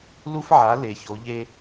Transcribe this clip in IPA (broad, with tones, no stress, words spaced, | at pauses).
lu˥fʕa˨˥ le˨˩ço˨˥ʎe˥